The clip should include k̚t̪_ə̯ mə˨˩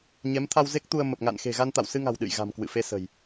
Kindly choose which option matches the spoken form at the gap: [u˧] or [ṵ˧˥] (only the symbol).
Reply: u˧